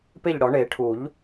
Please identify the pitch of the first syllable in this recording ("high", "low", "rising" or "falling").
falling